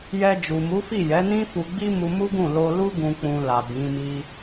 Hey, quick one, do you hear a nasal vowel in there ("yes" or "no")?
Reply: yes